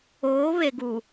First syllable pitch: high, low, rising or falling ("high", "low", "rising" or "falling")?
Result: rising